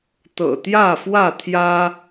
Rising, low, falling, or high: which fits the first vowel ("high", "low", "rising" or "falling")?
low